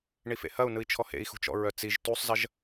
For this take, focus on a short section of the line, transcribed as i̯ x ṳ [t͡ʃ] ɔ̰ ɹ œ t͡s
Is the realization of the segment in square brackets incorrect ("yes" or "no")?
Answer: no